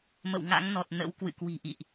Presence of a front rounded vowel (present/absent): absent